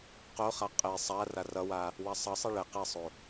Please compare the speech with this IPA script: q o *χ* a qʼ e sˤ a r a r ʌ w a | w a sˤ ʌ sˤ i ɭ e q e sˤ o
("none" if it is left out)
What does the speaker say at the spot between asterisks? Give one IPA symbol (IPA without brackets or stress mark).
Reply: χ